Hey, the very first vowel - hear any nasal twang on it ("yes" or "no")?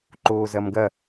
no